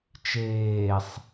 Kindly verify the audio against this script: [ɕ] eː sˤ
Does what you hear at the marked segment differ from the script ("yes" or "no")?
yes